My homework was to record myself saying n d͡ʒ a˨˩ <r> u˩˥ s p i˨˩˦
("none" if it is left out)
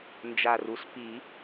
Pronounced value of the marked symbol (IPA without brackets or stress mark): r